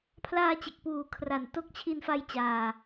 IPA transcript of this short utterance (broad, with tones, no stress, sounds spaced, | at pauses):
pʰ l aː˧ t͡ɕ e˨˩ k̚ p uː˨˩ kʰ r a˨˩ n t o˦˥ k̚ t͡ɕʰ i˧ n f a˧ j t͡ɕ aː˨˩